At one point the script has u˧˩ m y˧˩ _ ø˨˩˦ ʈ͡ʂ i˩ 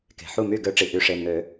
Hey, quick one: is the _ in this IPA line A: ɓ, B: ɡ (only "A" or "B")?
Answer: B